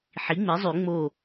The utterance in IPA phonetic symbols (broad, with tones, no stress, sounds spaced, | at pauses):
ħ i˩˥ ŋ͡m e˩˥ zˤ y˨˩˦ ŋ͡m o˧˩